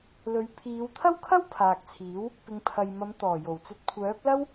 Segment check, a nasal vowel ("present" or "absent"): absent